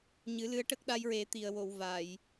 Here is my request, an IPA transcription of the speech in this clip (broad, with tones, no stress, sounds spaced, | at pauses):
ɲ ɨ˨˩˦ l ɨ˧˥ ə̯ ʈ ə˦˥ k̚ ɗ a˧ j ɹ e˨˩˦ t̪ i˨˩ ə̯ w o˨˩˨ w v a˨˩˨ j